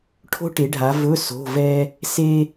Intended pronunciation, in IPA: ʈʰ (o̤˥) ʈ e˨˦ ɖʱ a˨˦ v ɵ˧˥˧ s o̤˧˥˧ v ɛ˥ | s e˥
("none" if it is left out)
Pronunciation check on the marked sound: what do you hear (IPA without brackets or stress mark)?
o̤˥